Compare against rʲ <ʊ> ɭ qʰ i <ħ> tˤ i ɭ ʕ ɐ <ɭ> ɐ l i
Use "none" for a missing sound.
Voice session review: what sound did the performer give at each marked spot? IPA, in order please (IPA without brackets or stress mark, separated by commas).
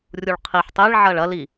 u, ħ, ɭ